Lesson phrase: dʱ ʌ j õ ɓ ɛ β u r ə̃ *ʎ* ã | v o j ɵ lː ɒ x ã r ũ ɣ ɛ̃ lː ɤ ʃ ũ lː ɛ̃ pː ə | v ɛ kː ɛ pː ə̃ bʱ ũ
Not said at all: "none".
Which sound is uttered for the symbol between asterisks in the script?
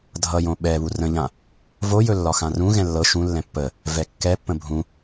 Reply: ʎ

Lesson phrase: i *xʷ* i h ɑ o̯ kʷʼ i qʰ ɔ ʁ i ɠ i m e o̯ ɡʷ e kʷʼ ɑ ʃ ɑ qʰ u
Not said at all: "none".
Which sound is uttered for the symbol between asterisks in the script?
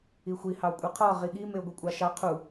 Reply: xʷ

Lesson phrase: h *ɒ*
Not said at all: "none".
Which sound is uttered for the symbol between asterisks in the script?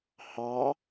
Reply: ɑ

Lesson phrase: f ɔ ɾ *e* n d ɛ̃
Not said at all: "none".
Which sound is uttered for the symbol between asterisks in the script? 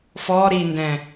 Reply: i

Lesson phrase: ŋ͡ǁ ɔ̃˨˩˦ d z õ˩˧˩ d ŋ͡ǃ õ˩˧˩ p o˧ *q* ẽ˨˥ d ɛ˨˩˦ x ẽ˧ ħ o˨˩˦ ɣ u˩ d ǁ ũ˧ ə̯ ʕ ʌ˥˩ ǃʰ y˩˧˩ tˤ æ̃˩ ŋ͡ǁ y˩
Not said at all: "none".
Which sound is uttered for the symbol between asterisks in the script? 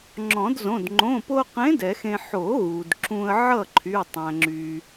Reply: q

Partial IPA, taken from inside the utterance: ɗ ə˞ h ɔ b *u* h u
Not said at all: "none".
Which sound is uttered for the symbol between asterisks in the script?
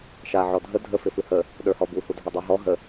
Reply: u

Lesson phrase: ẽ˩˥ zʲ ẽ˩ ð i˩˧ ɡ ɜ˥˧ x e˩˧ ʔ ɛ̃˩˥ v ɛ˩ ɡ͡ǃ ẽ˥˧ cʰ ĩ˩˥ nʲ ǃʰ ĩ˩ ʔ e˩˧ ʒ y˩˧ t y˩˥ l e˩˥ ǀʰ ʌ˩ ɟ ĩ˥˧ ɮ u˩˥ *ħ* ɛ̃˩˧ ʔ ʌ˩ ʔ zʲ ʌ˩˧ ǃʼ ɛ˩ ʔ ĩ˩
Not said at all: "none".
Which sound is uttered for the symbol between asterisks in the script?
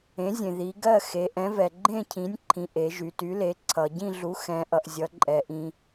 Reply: x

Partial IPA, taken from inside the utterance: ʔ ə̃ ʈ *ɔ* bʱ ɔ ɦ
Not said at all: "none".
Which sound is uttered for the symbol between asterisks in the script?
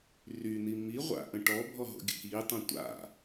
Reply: ɔ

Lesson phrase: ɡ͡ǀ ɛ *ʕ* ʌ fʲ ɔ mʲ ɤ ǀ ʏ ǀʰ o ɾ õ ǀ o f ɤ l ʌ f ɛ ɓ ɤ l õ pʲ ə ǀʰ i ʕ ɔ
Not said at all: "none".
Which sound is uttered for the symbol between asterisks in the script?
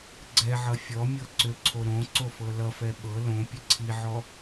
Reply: ʕ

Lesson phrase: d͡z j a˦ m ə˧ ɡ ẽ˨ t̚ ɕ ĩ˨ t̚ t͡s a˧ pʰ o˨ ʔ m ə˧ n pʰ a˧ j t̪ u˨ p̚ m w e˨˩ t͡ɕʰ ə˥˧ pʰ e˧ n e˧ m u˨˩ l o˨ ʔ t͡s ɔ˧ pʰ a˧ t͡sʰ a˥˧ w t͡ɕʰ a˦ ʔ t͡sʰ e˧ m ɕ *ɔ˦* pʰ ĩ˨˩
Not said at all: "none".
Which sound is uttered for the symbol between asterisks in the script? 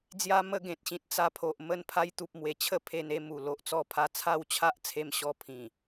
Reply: ɔ˧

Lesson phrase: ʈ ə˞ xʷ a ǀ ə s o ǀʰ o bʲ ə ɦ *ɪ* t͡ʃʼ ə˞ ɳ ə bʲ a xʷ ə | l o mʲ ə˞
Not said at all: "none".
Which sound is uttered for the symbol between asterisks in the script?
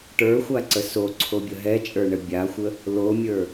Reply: ɛ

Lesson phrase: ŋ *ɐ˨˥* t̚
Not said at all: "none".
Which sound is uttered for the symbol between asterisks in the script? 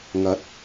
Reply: ɐ˨˥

